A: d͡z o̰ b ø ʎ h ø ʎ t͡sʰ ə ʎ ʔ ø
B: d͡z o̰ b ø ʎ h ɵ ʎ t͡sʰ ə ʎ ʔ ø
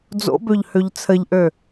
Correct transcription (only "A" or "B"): A